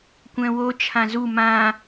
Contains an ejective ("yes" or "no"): no